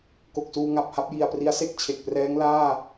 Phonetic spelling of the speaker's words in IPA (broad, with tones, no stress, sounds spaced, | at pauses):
k o˨˩ k̚ s uː˧ ŋ a˨˩ p̚ h a˥˩ p̚ j i˨˩ a̯ p r i˦˥ a̯ s e˥˩ k̚ t͡ɕʰ e˨˩ k̚ p r ɛː˦˥ ŋ l aː˥˩